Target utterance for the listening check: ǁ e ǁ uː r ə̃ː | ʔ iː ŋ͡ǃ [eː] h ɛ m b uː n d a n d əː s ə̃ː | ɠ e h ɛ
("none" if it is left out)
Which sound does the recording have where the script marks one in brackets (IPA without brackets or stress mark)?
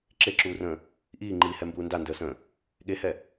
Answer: iː